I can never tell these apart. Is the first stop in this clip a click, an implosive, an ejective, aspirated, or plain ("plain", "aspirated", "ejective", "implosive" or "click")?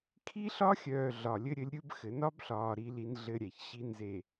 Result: aspirated